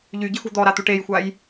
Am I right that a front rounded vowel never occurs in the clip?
no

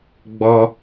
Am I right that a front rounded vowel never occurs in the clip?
yes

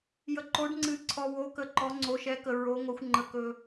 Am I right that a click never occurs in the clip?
no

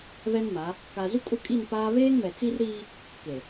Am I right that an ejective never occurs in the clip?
no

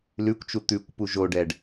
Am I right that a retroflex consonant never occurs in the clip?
no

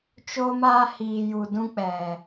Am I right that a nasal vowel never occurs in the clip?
no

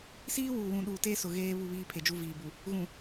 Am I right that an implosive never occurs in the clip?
no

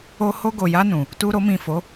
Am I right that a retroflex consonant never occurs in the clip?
yes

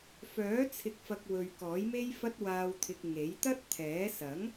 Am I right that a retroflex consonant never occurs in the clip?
yes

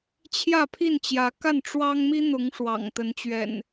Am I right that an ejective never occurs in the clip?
yes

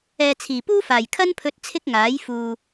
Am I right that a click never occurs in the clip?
yes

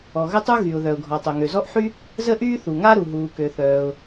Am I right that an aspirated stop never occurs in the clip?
yes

